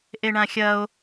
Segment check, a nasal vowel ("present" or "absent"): present